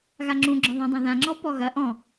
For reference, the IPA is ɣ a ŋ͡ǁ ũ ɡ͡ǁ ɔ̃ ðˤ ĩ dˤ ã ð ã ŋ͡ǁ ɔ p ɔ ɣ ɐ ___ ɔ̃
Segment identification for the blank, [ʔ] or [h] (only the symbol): ʔ